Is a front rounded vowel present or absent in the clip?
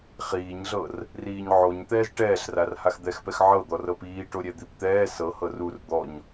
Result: absent